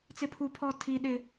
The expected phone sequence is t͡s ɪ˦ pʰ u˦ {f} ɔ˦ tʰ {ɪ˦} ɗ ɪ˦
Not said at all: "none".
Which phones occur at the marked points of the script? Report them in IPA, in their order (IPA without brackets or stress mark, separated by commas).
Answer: pʰ, i˦